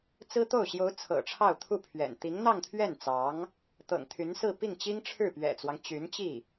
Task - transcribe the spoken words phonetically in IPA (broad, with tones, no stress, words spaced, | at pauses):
t͡sɹ̩˥t̪o˥˩ʊ̯ ɕjo˧˥ʊ̯ t͡sʰɤ̰˨˩ʈ͡ʂʰɑ˥˧ʊ̯t̪ʰu˥˩pʰɥɛ̰˨˩n t̪i˧˥ŋn̪ɑ˥˧ŋt̪ʰɥɛ˥˩n t͡sɑ˧˥ŋ | t̪ɤ̰˨˩ŋt̪ʰy˧˥nsɹ̩˥˧ pi˥˩ŋt͡ɕi˥ŋ ʈ͡ʂʰɻ̩˥˩pɥɛ̰˨˩t͡swɑ˦ŋ t͡ɕy˧˥nt͡ɕi˥˩